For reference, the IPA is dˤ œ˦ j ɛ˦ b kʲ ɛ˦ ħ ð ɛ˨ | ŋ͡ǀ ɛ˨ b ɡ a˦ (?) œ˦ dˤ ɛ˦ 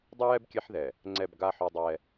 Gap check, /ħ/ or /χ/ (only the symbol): ħ